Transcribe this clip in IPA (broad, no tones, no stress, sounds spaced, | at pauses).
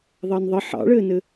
ðˤ ɑ n ðˤ ə ħ ɑ̰ ɭ ɘː n ɘ